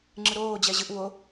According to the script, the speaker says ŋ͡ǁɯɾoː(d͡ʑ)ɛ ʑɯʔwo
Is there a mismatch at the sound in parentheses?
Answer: no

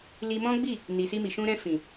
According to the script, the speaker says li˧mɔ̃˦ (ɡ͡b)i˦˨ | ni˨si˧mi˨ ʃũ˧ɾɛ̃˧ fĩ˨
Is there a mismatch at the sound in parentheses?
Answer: no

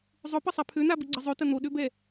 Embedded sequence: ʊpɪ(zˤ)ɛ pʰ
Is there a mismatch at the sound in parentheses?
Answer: yes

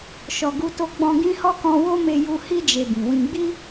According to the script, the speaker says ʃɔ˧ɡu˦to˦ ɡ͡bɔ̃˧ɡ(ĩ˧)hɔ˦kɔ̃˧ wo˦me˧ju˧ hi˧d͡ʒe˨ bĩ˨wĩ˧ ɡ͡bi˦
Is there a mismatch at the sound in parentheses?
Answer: yes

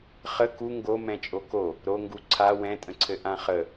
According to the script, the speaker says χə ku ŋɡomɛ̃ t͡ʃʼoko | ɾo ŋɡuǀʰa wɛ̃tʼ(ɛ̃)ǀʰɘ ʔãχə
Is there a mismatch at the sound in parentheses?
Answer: yes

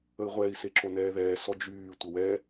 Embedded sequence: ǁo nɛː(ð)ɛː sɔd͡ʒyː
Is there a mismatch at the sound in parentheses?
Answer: no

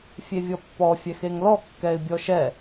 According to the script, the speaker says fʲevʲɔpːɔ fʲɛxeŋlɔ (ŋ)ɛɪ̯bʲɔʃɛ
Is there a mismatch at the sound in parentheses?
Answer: yes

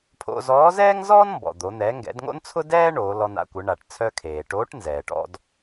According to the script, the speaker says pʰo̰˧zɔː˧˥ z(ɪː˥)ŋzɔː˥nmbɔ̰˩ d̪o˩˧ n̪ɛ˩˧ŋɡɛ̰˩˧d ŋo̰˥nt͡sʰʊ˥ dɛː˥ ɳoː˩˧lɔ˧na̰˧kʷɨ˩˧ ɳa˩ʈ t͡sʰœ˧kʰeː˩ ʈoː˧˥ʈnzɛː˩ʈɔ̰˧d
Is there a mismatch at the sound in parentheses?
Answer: yes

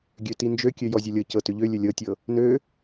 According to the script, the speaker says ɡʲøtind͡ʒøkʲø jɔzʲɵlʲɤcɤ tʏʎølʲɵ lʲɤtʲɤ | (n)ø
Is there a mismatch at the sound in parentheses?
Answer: no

